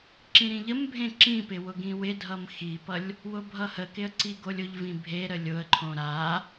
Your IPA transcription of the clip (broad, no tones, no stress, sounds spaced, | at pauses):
ǁ ĩ ɾ ĩ ʎ ə m bʱ ẽ ǁ ĩ p ɪ w ʊ ɡ ĩ w ɪ dʱ ʌ m x i p ʌ lʲ | w ʊ bʱ ʌ h ə k ɪ ə̯ ǀ i ɡ o lʲ ʊ ʎ v ĩ bʱ e ɾ ə lʲ ʊ ə̯ ǃʰ õ ɾ a